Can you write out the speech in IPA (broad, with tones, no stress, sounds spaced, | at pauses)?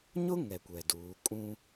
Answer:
ɲ ʊ˦ ŋ ɛ˨ kʷ ɛ˨ d uː˨˦ kʼ ũ˦